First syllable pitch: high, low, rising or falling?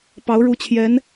rising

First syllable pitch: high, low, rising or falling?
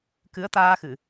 rising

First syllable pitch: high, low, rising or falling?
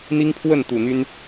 high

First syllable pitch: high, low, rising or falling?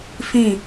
falling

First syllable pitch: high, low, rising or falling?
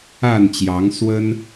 falling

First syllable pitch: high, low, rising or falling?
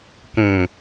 low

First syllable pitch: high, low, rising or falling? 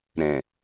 low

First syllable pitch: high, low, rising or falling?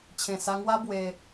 low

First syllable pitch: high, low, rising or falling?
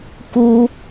high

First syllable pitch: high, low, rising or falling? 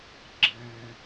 low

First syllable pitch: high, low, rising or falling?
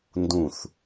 falling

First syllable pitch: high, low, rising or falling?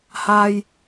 low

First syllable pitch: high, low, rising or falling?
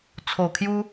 low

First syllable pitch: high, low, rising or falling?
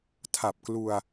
low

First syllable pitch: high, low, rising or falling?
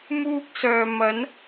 high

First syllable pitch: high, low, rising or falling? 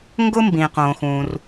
high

